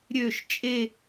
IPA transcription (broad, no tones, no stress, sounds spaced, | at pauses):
ɾʲ ø ʃ t͡ʃʼ e